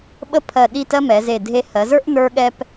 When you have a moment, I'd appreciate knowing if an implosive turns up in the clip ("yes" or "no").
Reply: yes